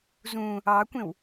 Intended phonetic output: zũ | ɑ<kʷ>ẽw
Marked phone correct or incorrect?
correct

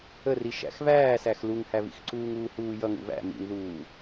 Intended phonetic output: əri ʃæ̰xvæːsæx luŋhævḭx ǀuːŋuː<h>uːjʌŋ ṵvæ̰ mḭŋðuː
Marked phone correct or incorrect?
correct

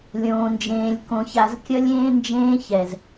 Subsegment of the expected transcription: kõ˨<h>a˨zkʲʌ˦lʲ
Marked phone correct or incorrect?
incorrect: ç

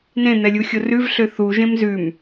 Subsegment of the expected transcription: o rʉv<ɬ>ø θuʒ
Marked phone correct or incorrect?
correct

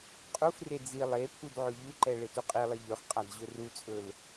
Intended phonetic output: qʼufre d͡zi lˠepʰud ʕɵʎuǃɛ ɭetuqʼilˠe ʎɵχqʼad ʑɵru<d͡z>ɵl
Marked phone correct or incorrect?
incorrect: t͡sʼ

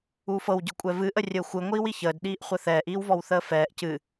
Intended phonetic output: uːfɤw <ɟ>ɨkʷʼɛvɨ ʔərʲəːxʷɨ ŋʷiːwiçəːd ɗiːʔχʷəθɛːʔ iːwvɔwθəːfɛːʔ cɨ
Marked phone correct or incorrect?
correct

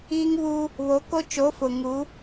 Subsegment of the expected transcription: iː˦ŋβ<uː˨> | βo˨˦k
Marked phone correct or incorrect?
incorrect: uː˦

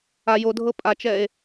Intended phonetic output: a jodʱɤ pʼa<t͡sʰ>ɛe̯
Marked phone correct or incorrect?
incorrect: t͡ʃ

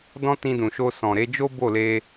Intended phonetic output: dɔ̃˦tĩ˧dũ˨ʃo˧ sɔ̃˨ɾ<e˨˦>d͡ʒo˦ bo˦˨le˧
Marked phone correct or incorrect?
correct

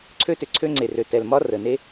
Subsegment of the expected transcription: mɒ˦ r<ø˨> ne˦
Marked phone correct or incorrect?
incorrect: ə˨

